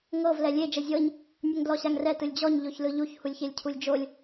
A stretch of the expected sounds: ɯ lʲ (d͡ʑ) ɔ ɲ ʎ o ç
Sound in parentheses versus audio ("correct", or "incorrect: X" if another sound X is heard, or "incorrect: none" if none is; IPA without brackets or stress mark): correct